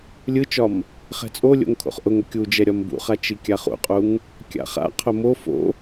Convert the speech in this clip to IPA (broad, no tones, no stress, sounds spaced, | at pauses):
lʲ ɯ t͡ʃ ɒ m | χ ɛ̤ t͡sʼ o lʲ o̰ ŋ kʰ o̰ χ ʔ ʊ ŋ ʊ kʲ u d͡ʒ ɛ ɾʲ ɒ m b ṵ χ a t͡ʃ i kʲ a χ ṵ qʼ u ŋ | kʲ a̰ χ a̰ qʰ ʊ m o f o̰